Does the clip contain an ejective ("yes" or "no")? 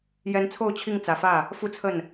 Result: no